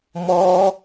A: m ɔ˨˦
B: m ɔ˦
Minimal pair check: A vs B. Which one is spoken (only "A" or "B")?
B